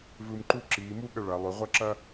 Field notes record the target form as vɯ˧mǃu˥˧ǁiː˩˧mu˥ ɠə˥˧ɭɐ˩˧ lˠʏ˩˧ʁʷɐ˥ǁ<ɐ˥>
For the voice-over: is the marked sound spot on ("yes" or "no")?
yes